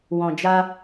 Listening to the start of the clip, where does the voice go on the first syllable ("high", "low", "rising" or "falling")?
low